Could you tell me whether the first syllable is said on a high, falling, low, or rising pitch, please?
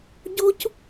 high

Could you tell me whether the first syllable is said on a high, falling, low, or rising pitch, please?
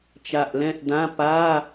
low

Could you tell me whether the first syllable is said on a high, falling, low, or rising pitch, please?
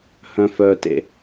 low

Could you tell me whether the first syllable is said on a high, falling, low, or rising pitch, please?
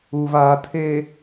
low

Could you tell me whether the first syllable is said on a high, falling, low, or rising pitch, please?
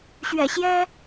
low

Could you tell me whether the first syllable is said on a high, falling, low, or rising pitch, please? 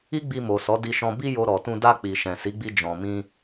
high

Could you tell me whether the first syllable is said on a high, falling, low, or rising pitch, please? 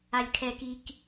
high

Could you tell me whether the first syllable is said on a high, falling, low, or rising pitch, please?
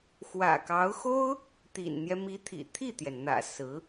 low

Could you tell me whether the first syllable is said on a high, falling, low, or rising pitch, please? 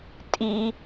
high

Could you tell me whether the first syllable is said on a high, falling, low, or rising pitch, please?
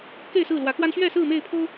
falling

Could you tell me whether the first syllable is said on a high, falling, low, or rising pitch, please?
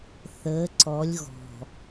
rising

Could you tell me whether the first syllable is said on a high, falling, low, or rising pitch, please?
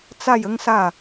falling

